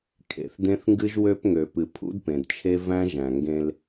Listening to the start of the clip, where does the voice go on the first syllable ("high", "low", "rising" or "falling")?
low